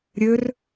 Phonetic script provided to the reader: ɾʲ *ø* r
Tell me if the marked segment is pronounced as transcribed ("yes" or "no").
yes